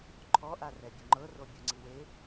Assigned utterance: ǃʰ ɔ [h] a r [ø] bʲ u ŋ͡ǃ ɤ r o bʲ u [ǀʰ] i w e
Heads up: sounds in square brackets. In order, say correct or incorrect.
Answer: incorrect: ʔ, incorrect: ɛ, incorrect: ŋ͡ǀ

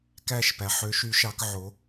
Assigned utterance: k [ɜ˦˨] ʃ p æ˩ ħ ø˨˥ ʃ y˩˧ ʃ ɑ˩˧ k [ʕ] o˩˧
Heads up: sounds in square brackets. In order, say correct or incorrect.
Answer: incorrect: æ˦˨, correct

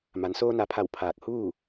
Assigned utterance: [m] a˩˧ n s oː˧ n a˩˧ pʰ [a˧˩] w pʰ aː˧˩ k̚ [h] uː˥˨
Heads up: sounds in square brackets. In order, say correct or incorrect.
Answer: correct, correct, correct

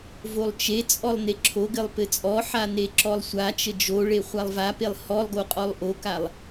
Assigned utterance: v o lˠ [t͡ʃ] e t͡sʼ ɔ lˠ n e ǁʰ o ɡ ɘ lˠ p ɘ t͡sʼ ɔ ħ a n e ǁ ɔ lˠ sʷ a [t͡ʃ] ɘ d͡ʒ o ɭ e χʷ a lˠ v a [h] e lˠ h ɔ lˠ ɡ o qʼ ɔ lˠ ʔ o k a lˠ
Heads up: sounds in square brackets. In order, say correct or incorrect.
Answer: correct, correct, incorrect: p

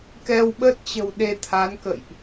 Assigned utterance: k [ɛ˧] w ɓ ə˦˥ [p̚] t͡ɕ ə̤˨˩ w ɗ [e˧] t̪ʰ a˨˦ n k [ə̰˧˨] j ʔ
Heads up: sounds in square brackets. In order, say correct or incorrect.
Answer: correct, incorrect: t̚, correct, correct

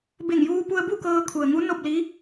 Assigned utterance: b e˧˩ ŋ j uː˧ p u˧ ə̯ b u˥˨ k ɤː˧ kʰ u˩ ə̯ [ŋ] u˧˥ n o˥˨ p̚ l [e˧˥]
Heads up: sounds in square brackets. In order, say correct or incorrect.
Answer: correct, incorrect: i˧˥

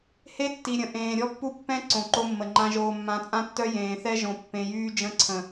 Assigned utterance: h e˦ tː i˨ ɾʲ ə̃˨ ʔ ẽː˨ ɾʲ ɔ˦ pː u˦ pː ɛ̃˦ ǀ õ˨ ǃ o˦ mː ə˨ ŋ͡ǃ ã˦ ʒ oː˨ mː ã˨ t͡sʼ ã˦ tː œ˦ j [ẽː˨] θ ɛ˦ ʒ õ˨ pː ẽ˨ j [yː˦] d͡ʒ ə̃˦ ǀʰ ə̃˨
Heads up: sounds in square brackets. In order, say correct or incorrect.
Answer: correct, correct

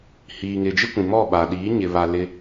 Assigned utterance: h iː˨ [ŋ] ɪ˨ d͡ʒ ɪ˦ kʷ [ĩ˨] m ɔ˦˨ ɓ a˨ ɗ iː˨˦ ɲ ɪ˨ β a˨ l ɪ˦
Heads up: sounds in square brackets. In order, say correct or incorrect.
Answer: correct, correct

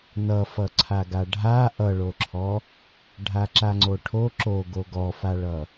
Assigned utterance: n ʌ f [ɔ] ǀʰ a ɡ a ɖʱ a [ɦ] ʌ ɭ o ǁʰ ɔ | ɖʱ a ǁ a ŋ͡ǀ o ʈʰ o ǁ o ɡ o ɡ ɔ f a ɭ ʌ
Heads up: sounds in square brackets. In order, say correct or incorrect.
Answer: incorrect: ʌ, incorrect: ʔ

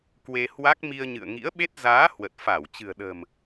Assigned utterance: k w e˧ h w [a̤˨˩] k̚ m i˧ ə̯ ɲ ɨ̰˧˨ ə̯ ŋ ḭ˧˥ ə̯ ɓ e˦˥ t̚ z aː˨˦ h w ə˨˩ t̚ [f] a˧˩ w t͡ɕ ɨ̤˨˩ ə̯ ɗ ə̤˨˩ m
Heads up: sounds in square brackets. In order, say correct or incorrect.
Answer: incorrect: a˦˥, correct

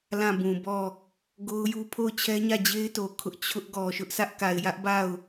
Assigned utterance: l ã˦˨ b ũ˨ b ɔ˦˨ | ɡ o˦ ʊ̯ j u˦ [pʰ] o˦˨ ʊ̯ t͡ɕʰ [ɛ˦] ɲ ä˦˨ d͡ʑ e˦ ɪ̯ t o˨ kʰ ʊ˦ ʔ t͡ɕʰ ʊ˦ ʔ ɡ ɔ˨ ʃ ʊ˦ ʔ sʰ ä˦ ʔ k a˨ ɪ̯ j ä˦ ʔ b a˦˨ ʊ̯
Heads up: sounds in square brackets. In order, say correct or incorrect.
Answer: correct, correct

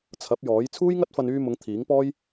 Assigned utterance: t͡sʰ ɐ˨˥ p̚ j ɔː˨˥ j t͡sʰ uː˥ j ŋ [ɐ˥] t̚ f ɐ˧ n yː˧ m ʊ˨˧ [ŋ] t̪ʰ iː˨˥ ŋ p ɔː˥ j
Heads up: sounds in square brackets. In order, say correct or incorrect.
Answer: correct, correct

